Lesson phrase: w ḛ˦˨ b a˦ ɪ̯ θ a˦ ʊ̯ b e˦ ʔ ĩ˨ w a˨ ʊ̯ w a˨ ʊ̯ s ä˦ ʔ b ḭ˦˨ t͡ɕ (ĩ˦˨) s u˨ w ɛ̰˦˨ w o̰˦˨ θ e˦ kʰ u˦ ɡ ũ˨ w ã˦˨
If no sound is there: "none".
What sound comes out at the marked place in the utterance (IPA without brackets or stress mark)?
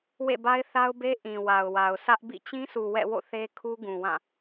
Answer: ĩ˦